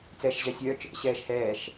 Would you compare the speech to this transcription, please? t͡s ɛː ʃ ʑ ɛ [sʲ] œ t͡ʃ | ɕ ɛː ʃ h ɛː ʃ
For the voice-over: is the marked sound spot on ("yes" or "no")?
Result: yes